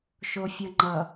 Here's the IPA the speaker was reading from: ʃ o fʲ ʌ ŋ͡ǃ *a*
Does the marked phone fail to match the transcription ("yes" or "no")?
yes